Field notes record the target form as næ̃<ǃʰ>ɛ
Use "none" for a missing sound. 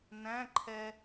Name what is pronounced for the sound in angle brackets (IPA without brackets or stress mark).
ǃʰ